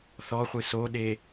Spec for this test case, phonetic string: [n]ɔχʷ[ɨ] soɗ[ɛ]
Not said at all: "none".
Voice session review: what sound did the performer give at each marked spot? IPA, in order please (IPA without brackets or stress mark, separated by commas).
θ, ɨ, e